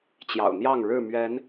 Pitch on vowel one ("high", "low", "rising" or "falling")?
low